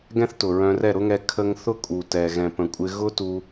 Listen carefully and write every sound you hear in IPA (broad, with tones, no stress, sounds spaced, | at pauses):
ɡ ɛ̃˦ θ t ʊ˨ ɹ œ̃˧ r ɛ˦˨ ɾ ʊ˦ ŋ ɛ˧ kʰ ə˦ ŋ θ ʊ˦ kʼ u˨ t ɛ˨ ɣ ɛ̃˨ p ə̃˨ kʷʼ ɪ˧ ɣ ʊ˦ t u˧